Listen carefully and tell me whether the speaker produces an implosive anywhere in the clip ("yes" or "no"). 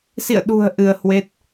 yes